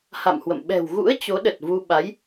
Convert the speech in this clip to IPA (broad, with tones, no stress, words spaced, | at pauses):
ha̰˧˨mhwə̰˧˨m ɓɛ̤˨˩wɣṵ˧˥ə̯ t͡ɕo˨˦ɗə˨˩t̚vu˧ ɓa˨˦j